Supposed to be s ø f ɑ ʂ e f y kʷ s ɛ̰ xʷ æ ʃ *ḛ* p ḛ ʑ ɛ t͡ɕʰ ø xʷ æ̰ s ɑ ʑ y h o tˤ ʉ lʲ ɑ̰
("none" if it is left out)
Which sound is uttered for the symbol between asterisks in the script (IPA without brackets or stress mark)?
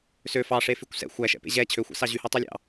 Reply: ɛ̰